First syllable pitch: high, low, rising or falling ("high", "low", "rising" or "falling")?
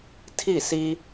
falling